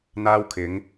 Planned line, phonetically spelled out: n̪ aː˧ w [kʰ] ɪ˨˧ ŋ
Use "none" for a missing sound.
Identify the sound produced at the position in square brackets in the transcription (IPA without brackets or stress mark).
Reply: kʰ